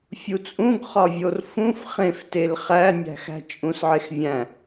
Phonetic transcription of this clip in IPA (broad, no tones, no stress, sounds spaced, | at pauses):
fʲ u t͡sʼ ũ ɡ χ ɒ vʲ o r f ũ f χ ẽ f t e l χ æ nʲ æ̤ x æ̤ t͡ʃʼ ũ s ʕ e x vʲ æ̃